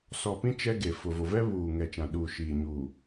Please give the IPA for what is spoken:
sɔ˨pĩ˦ t͡ʃɛ˦ɡe˨ fʊ˨vo˨vɛ˦ βuː˨ŋɛ˨ t͡ʃã˨ɗuː˨ʃiː˨ ɲuː˨

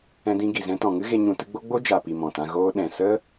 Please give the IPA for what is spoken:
ɛ̃˧dĩ˧ɡi˨zɛ̃˧ tɔ̃˨ŋɨ˦ɣe˧ ɲũ˧ tɨ˧ɡ͡bo˦ ɡ͡bo˦d͡ʒa˨pi˨ mɔ̃˨tã˧ɣoː˦ ɗɛ̃˨sə˦

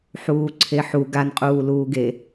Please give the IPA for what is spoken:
ħuːǀʰeħu ɡanqʼuː luːɡe

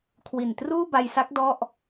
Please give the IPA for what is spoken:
kʰwi˨˩n truː˥˩ba˧jsa˦˥k̚ dɔ˥˩ʔ

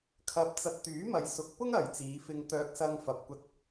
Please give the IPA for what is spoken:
kʰɐ˧p̚t͡sɐ˧t̚ t̪yː˨˥mɐ˨jsʊ˨˥k̚pʊ˥ŋ ɐ˨jt͡siː˨˧fɪ˧ŋ t̪œː˧k̚sɐ˧ŋ fɐ˨p̚kʷɐ˧t̚

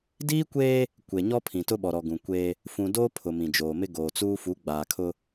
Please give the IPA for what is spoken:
diː˦kʷeː˦ | kʷe˨ɲɔ˦pʰĩ˨tʊ˦ ɓɔ˨ɾɔ˨ɡũ˨kʷeː˦ | fũ˨doː˦ pʰʊ˨mĩ˨d͡ʒoː˨mɪ˦ ɡoː˨t͡suː˦ fu˨˦ɡ͡baː˨kʰʊ˦

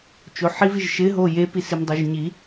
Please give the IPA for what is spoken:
t͡ʃoħiviʒ ʃɪɦo jepi simdˤoʒɲi

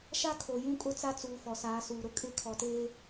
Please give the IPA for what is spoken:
ʃa˦kʰo˨ jũ˦kʼʊ˦t͡sa˦t͡suː˨ fɔ˨saː˨˦suː˨ɾʊ˦ kʼɪ˦ kʰɔ˨teː˦

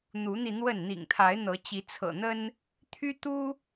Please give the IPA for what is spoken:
n̪u˨˦n̪i˧ n̪wə˥˨n n̪ḭ˨˩ŋt̪ʰa˨˦ɪ̯n̪ɤ˨˦ t͡ɕi˨˦t͡sʰɤ̰˨˩n̪ə˦n | t̪ʰy˦t̪u˦

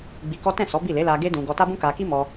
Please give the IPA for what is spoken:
ɡ͡bi˧kɔ˦ tɛ̃˦˨ sɔ˨˦bi˦˨le˨˦ la˧ɡe˦ dũ˧ ɡɔ˧ta˦ bũ˦ka˧ ki˦mɔ˧

